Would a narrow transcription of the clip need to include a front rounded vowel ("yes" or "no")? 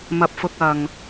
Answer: no